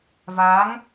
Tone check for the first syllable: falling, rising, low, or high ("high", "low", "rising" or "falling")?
rising